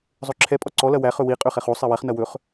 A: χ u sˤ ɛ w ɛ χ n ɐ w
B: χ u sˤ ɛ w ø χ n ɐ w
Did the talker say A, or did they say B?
A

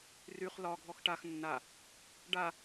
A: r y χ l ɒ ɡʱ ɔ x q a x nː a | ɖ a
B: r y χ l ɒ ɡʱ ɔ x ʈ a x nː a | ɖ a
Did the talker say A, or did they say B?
B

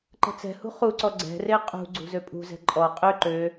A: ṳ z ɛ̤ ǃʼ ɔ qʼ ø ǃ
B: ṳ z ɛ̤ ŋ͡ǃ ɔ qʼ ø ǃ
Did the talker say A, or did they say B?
A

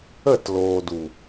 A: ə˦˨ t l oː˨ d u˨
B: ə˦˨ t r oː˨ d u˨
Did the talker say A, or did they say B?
A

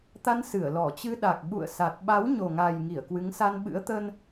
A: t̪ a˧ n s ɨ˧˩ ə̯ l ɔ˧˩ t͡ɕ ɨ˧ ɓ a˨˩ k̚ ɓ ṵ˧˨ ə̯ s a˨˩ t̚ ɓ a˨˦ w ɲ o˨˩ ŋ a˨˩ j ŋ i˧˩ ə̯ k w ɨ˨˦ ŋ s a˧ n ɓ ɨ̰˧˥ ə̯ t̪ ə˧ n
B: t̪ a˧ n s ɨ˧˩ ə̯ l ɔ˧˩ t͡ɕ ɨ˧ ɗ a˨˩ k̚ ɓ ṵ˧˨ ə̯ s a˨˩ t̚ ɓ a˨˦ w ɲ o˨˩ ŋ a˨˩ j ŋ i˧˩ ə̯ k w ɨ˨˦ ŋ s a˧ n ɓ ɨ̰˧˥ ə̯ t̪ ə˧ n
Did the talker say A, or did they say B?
B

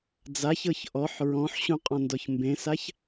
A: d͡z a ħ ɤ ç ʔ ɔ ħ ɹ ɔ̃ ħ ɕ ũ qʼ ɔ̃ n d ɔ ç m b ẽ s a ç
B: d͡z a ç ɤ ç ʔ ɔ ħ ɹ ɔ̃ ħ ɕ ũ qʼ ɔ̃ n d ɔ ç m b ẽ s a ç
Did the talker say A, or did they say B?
B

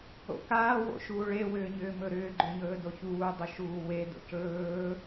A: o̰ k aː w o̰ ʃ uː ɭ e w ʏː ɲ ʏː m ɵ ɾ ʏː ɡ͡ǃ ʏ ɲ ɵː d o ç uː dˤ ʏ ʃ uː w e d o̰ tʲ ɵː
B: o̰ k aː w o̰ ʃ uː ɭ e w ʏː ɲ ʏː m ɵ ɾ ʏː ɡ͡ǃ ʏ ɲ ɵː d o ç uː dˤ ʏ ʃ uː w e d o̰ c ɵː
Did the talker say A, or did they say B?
B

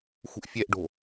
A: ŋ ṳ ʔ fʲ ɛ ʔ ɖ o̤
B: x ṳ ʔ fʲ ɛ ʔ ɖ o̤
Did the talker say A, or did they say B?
B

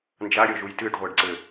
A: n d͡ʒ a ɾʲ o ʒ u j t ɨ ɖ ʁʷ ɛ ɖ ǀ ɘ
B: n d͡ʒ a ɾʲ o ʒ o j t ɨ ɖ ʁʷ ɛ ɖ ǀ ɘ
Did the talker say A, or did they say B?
A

